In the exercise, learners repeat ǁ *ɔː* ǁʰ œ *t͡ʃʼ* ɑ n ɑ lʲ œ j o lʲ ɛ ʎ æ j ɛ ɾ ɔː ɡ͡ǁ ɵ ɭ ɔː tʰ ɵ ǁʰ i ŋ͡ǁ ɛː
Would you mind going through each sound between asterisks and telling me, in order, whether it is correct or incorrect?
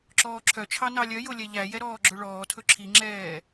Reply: correct, incorrect

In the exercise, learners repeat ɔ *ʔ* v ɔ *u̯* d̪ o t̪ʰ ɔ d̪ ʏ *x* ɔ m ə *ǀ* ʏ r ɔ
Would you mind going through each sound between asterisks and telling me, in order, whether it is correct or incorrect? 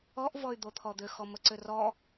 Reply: correct, incorrect, correct, correct

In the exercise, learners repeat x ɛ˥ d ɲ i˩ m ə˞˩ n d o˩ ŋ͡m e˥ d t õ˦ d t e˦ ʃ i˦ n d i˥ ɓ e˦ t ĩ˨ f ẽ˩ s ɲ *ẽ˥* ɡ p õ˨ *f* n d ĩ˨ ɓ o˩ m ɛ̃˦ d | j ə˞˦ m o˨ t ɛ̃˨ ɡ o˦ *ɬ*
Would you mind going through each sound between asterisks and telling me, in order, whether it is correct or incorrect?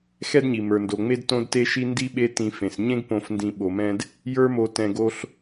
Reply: correct, correct, correct

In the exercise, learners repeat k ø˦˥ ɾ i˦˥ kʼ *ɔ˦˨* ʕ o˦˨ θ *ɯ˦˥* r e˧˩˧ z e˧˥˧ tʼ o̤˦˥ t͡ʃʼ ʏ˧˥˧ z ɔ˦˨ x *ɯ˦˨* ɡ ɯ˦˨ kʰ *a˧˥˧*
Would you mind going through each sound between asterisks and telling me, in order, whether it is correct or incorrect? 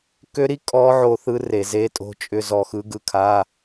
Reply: incorrect, correct, incorrect, correct

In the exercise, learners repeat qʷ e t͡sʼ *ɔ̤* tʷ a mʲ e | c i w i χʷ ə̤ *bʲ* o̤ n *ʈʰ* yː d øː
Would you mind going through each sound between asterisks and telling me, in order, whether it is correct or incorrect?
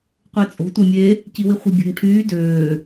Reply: incorrect, correct, correct

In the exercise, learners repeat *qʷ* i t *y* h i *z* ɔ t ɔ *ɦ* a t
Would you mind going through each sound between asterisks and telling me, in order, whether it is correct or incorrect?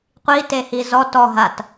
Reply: correct, incorrect, correct, correct

